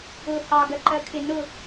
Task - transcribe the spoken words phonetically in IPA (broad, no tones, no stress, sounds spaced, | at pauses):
ʊ h ɑ ɡ ɜ ǃ ɜ kʰ ɪ n ʊ